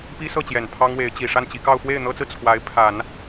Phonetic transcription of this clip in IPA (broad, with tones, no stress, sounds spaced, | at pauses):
p i˥ s ɤ˥˩ t͡ɕ j ɛ˨˩ n pʰ ɑ˥ ŋ w e˧˥ ɪ̯ t͡ɕ i˨˩ ʂ a˥˩ n t͡ɕ i˧˥ k ɑ˥˧ ʊ̯ f w e˥˩ ɪ̯ n̪ ɤ˥ t͡s ɹ̩˨ t͡sʰ w a˧˥ ɪ̯ pʰ a˨˩˦ n